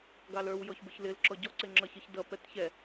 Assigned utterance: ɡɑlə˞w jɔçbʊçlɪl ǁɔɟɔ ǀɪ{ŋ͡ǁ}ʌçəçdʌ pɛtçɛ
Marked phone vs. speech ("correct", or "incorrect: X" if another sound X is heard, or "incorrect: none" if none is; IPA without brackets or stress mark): correct